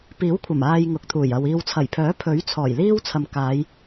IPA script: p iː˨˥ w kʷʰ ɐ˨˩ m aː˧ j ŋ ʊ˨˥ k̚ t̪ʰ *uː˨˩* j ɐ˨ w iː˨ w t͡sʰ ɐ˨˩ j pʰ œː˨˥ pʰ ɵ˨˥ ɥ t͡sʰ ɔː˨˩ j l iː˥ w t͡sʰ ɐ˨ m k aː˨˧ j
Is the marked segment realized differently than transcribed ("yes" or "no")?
no